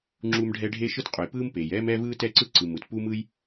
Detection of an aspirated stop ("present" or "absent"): absent